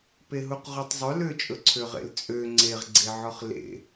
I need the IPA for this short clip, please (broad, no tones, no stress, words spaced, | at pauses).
peɦuqʁutˤzˤɵ løt͡ʃʼɵǀʰøʁḛl t͡sʼø ŋ͡ǀeʁɡ͡ǀeʕɔχ lḛ